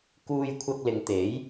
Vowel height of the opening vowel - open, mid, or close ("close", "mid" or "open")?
close